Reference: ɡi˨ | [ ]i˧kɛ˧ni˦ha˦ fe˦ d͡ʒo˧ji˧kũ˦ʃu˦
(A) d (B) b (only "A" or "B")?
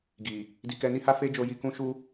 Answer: A